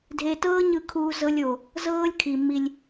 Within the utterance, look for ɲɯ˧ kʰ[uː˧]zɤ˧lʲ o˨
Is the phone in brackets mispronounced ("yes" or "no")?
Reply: no